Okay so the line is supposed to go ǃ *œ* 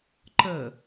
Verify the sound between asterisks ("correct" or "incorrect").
incorrect